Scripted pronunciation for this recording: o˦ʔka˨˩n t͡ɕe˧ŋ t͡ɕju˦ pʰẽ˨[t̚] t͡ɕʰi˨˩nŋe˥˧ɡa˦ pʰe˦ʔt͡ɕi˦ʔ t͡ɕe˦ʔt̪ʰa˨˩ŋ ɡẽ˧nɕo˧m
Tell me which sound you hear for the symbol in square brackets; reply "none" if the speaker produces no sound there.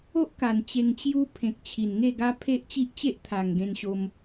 k̚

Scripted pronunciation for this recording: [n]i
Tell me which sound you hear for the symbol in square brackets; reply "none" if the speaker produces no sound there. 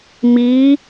m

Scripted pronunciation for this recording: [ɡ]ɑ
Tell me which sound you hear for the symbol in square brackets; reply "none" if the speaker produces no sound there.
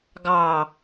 ɡ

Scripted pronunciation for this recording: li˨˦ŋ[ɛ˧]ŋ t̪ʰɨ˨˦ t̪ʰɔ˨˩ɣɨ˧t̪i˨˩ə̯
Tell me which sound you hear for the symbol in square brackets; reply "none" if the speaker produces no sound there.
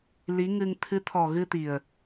ɨ˧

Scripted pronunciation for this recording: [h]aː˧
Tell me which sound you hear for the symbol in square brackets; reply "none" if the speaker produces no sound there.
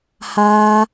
h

